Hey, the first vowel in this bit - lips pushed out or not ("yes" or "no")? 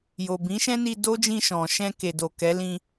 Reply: yes